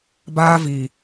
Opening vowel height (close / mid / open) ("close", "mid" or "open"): open